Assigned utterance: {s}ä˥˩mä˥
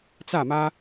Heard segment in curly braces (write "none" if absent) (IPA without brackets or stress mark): t͡s